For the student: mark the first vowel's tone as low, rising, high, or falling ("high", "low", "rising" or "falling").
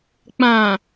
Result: low